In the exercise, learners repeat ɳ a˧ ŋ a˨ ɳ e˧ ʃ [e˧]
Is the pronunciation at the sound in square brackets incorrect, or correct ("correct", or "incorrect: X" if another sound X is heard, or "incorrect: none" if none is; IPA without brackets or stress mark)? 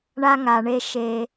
correct